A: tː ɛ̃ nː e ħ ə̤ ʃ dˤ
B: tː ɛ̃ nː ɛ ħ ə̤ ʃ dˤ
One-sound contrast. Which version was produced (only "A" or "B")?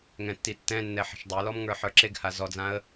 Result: B